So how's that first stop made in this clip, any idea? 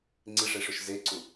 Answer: click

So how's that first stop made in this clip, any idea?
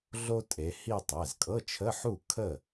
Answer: ejective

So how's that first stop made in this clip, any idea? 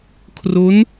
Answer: aspirated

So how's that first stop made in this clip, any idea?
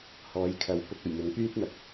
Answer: aspirated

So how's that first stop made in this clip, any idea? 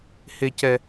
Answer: plain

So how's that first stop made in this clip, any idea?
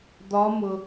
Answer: plain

